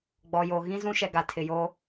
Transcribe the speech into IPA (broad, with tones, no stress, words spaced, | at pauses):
ɡ͡bɔ˨jo˨ ɣĩ˦zũ˦ʃɛ˨ ɡa˨tʰɪ˨joː˦